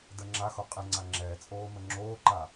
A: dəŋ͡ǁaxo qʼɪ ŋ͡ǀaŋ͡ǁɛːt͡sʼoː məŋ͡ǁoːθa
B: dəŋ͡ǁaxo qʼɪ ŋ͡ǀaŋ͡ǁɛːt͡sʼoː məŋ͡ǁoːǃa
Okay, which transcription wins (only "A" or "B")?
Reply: B